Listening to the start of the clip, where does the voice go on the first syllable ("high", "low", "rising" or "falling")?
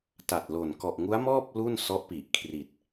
low